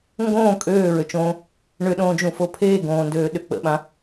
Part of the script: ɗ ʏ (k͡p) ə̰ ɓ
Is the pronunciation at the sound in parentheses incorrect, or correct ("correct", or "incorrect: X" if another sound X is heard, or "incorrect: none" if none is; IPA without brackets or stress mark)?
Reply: correct